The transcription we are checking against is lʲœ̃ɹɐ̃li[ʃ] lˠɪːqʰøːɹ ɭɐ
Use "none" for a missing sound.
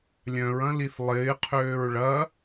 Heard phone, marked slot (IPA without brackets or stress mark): θ